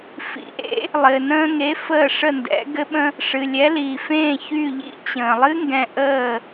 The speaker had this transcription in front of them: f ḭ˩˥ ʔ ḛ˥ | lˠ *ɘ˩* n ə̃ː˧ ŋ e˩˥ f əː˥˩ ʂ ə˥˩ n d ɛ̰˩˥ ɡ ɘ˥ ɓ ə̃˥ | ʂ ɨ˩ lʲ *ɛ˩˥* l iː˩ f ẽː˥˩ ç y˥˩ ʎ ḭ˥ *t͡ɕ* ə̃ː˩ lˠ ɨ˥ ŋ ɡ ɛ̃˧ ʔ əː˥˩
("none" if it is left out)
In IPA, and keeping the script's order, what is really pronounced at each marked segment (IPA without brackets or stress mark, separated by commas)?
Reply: ɘ˩, ɛ˩˥, t͡ɕ